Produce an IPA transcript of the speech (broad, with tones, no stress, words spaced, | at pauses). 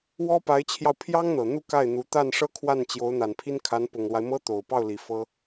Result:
wɔ˥pa˧˥ɪ̯t͡ɕʰjɑ˧ʊ̯pʰjɑ˥ŋ n̪ɤ˨˩n̪u˥˧ ka˥˩ɪ̯n̪u˧˥ t̪a˥˩nʂɤ˥ kʰwa˥˩nt͡ɕjo˧˥ʊ̯n̪a˨˩npʰi˥n kʰa˧˥npʊ˨˩ŋlwa˦ɪ̯ mɤ˥t̪o˨˩ʊ̯pɑ˥˩ʊ̯ li˨˩fɤ˥